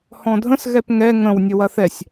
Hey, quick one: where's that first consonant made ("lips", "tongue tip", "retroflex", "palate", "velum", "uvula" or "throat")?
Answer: throat